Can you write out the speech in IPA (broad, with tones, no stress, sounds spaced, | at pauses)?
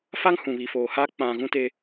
f a˦ ŋ h ũ˨ β i˨ f oː˨ h aː˦ k͡p ã˨ ɣ ũ˦ t e˦